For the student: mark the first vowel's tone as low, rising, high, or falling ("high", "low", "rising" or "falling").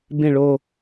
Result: falling